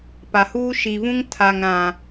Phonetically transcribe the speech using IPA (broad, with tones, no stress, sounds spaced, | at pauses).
p a˨ h uː˦ ʃ i˨ v ũ˦ ŋ tʰ a˨ ŋ ɾ ã˨